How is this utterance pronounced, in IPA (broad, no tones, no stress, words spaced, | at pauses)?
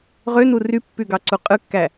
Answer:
ʁønu rypːyɡɑǀu qʼɯkːæ